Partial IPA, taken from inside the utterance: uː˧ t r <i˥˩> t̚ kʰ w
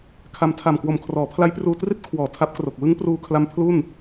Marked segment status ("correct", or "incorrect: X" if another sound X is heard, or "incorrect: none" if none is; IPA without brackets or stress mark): correct